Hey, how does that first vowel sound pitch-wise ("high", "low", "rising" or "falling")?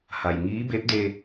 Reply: low